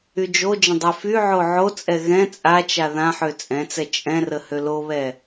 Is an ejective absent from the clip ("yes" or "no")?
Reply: no